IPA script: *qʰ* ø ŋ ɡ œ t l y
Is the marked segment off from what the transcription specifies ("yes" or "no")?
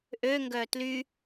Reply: yes